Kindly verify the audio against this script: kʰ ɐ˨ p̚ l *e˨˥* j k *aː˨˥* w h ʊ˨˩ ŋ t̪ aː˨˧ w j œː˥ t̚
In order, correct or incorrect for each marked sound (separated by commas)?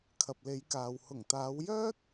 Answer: incorrect, incorrect